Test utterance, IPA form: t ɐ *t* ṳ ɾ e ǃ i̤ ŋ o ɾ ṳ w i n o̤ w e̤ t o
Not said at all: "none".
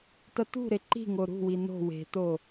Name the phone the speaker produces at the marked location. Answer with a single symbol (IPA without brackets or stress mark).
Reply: t